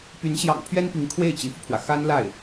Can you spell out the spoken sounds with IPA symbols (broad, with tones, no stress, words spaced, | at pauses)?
py˧˥nɕjɑ̰˨˩ŋ pʰɥɛ˥npi˧˥ŋ kʰwe˥˩ɪ̯ t͡ɕi˧˥fu˧pʰwä˩ xa˥n la˥˩ɪ̯